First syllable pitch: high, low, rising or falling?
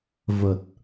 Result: low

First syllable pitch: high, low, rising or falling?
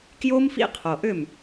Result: high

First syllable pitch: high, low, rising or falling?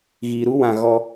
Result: low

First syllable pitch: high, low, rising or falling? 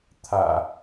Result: low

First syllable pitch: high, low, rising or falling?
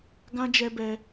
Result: high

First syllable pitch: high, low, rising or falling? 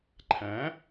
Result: rising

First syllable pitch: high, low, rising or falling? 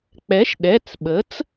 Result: rising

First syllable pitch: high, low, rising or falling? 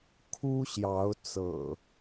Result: high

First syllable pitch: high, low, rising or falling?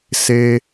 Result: high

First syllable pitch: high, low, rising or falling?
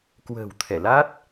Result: low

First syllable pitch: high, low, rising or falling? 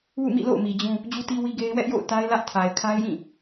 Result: falling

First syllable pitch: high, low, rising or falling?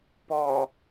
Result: low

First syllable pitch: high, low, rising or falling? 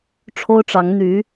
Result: high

